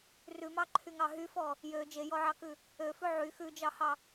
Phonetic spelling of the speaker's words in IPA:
rʉmɑǃʰyŋɑ ɦyfɔ | jø d͡ʒejɔʕɑkʉ | øfʉ ʕy xʉd͡ʒɑhɑ

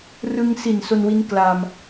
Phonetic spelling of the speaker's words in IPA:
rɯ˧ŋsi˨˩n so˧nwi˦˥n kla˧m

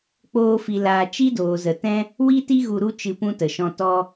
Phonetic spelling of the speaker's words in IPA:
k͡poː˦fi˧laː˧ t͡ʃi˦doː˨zə˨tɛ̃˦ | wi˦ti˦ ɣu˧ɾu˦ t͡ʃɨ˧pũ˦tə˨ʃɔ̃˧ tɔ˧

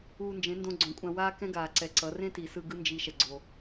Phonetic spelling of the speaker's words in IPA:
uː˧nd͡ʒẽ˨˦ ndõ˧ɡ͡ǀõ˨kʷʼã˧waː˦ kɛ̃˦ɡaː˨ ǀɛ˨ǀʌ˨˦ rẽ˦ti˨sɯ˧ ɡɯ˦nd͡ʒi˧ ʃɛ˧ɡ͡ǀo˧

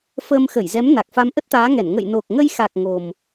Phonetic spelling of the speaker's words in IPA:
fəː˧mxə˧˩jzɛ˨˦m na˨˩k̚fa˨˦m ʔə˦˥t̚t̪aː˨˦ŋɛ˧˩n ŋə̰˧˨jno˨˩k̚ŋə˧jxa˨˩k̚ ŋo˨˩m

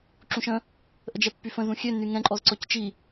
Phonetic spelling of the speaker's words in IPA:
ǁũʃə̃ | ʔəd͡ʒɛpːyfə̃ zũxʲø nyŋɛ̃ ǃʼɔzǀɔct͡ʃi

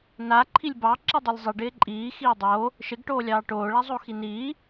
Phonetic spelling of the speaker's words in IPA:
na ǃʰilʲbɑ ǁidˤilʲzˤi ɖɪːǃʼiː xiːdˤo | ʃɪɡ ʈoːlʲɑːʈoː ɭazˤoxiniː

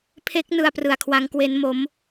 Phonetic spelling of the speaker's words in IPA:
pʰe˦˥k̚nɯ˧a̯ prɯ˧a̯kʰwa˦˥ŋkwe˦˥n mo˦˥m

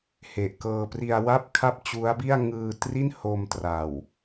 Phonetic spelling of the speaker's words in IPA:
he˨˩ʔkɤː˧pri˧a̯wa˥˩p̚ kʰa˥˩p̚t͡ɕu˦˥a̯bi˥˩a̯ ŋɯː˧tri˥˩n ho˧mtra˨˩w

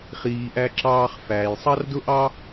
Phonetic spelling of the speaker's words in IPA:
χiː˩ʔæ˨ ǁɑː˨χ fæː˩jsˤɑ˥rdʊ˥ʔɑ˥

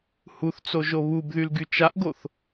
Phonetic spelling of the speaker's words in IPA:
huθt͡so ʒoβubðyl ɡyt͡ʃaʔɡoθ

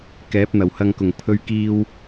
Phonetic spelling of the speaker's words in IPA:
kɛː˨˥p̚n̪ɐ˨˩whɐ˧ŋkʊ˨˩ŋ pʰɵ˧ɥkiː˧w

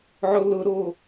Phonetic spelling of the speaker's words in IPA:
ʕolʊɾo

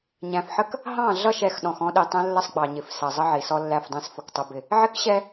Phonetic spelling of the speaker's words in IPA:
ɲæ̃˨fħə˦k | ɦɑ̃˦˨ɮʌ˦˨ʃɛ˨x ɗɔ̃˨xɔ̃˦ɗi˨tˤɛ̃˦ lːə˦sˤɡ͡bɑ˨ɲɪ˨f sɜ˨zˤə˦ʕi˨sɔ˦ lːæ˦˨fdˤæ̃˦s fʊ˨ktˤʊ˦bɪ˦ | ʕɪ˦kɕɛ˦

